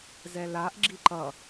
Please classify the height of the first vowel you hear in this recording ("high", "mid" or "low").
mid